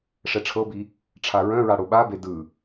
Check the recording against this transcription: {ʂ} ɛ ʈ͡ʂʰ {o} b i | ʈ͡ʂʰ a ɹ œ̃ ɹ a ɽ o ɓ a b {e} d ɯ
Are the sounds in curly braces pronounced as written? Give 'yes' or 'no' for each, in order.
yes, no, yes

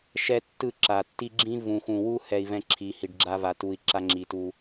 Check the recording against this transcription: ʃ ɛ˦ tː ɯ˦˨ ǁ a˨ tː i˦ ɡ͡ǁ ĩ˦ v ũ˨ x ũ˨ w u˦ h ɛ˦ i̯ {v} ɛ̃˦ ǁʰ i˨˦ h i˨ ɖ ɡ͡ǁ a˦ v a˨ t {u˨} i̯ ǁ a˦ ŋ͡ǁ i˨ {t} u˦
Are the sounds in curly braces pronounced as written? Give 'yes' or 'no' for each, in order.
yes, yes, yes

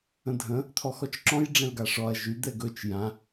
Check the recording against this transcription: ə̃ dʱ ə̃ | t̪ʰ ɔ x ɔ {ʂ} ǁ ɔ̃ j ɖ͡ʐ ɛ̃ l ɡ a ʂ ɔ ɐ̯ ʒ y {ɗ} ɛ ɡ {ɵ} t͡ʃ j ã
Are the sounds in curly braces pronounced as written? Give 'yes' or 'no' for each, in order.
no, no, yes

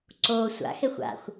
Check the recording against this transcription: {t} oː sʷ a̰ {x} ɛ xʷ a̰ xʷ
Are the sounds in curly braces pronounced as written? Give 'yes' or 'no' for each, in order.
no, yes

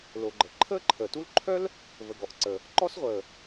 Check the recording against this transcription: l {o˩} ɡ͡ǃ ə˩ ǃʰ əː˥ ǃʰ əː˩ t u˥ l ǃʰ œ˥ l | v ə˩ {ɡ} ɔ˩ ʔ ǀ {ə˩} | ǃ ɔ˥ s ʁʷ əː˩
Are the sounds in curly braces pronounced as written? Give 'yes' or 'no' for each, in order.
yes, yes, yes

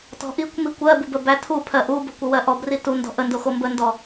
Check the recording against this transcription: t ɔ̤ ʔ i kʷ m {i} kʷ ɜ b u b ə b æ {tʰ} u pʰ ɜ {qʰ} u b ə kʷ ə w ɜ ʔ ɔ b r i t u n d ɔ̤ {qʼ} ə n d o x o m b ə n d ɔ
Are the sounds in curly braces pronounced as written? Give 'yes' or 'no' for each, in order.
yes, yes, no, no

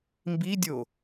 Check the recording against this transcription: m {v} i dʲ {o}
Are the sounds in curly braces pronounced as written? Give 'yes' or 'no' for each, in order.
no, yes

